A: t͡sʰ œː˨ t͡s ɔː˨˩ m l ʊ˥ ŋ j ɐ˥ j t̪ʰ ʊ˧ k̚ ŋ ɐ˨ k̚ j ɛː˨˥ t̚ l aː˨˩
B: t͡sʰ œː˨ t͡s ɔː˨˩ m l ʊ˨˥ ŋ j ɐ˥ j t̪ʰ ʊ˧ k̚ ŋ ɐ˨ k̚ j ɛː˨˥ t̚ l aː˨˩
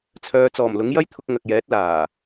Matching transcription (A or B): B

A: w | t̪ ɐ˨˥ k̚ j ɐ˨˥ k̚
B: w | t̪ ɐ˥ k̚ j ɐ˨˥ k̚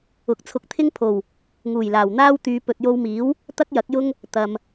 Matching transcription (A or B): B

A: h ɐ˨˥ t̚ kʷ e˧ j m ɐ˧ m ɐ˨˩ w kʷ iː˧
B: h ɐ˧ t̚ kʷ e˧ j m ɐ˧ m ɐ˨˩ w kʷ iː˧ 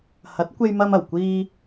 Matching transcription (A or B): A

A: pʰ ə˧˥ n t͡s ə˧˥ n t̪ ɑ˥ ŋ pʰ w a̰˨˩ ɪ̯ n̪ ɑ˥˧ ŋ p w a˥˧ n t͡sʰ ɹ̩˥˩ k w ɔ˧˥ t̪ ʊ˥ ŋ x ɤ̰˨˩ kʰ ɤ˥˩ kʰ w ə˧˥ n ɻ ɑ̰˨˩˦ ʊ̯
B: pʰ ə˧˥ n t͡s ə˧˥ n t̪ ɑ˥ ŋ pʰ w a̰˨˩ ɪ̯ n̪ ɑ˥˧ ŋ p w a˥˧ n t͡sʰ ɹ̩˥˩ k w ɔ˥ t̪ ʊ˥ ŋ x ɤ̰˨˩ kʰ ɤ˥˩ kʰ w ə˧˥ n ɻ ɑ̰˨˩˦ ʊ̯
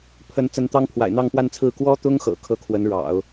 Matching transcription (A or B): B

